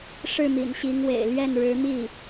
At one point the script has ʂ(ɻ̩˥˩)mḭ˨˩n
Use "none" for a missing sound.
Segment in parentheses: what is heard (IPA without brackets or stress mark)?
ɻ̩˥˩